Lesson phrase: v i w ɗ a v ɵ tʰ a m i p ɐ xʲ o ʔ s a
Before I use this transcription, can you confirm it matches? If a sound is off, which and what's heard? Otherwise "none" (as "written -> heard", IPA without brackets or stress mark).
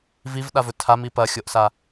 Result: w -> v